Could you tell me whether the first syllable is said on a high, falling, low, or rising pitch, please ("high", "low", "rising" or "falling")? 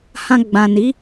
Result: low